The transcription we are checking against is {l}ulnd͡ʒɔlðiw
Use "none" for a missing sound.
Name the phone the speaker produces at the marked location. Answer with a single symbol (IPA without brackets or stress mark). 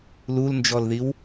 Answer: l